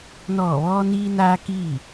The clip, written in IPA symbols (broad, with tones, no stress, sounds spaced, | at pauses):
n ɔː˧˩ ʋ ɔː˧ n iː˧ n aː˧ k iː˥˨